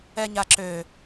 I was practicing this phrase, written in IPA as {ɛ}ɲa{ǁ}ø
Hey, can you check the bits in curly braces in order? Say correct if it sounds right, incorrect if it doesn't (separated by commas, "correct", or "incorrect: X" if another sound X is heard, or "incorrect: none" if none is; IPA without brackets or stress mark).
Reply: correct, correct